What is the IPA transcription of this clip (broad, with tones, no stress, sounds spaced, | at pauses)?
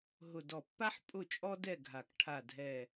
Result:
ɦ ʊ˨˩ d ɔ˨˩ pː a˦ ħ pʼ ʊ˦˨ t͡ʃʼ ɔ˦ d ɛ˦˨ ɡʱ a˨˩ k ʈʰ a˨˩ dʱ ɛ˨˩